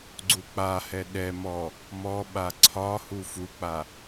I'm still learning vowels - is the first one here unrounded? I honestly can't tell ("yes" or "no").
no